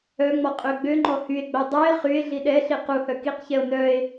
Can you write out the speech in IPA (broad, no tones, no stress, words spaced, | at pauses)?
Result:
œŋ͡mɔ qʼøɡ͡bøŋ͡ǃɔ hye̯ɡ͡bœ dˤœe̯ χye̯ ɮiɗɛɬi quhœ kiqçɛo̯ nœe̯